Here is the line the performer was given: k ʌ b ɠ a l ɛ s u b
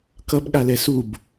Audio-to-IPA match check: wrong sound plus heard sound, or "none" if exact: none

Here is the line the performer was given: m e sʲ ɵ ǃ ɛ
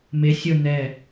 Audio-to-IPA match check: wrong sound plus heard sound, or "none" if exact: ǃ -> n̪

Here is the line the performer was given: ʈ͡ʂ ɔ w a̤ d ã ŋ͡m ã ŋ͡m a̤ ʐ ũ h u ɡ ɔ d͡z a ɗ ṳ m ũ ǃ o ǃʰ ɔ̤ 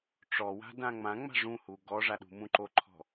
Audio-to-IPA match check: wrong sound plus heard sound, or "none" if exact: d͡z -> ʐ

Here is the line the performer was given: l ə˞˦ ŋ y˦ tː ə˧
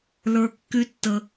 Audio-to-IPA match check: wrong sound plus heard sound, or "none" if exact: ŋ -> kː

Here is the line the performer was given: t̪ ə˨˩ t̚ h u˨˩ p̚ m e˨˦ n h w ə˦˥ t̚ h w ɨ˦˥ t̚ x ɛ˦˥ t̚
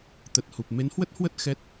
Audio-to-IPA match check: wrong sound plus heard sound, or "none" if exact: ɨ˦˥ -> ə˦˥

